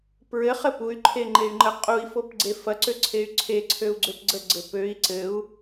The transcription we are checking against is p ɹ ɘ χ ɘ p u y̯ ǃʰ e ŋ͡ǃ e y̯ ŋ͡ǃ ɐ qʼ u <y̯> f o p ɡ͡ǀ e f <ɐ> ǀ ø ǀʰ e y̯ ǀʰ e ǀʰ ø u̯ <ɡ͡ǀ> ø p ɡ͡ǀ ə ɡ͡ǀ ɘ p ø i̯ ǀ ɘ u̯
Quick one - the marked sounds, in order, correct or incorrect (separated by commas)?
incorrect, correct, correct